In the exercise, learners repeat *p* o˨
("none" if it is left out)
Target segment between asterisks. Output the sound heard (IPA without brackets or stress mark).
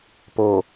p